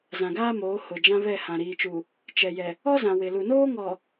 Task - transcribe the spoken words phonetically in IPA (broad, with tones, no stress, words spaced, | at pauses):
zã˨ɡaː˦moː˨˦ hʊ˨ d͡ʒã˦βɛ˦˨hã˨ ɾiː˨t͡ʃu˨ | t͡ʃɛ˨jɛ˨ | ɔ˦zã˨ wɪ˨lu˨noː˦ŋɔ˨